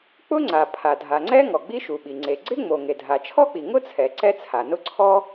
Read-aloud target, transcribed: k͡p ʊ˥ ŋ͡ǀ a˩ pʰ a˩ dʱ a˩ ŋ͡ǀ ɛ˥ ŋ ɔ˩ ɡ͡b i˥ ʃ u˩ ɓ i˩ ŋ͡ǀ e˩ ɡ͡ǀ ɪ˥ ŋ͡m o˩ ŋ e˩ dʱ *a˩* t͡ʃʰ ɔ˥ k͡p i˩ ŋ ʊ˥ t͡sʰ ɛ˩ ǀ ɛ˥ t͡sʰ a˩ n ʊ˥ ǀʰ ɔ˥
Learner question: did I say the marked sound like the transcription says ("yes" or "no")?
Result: yes